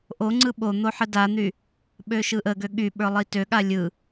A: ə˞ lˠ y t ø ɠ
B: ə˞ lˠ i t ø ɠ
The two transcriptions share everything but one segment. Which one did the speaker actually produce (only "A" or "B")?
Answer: B